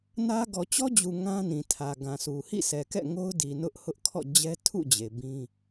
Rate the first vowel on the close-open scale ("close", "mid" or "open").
open